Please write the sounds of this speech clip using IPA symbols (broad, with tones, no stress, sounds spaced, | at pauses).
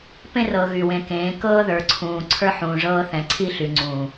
p ẽ˦ r ɤ˨ ɣ y˨ w ẽ˨ k ẽː˨˦ k ɤː˦ ð ə˞˨ ǀʰ ũː˨ ǀʰ ə˞˦ ħ ũː˨ ʐ ɤː˦ θ ɛ̃˨ ǀʰ i˦ ɬ y˨ ŋ͡ǀ ũ˨